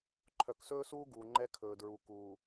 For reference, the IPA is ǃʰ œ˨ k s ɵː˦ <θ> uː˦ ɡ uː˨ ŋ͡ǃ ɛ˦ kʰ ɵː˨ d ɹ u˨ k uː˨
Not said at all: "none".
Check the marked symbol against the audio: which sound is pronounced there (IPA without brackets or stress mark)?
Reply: s